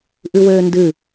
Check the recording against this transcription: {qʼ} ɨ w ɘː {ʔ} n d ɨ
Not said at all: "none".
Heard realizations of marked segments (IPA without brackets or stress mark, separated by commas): ʔ, none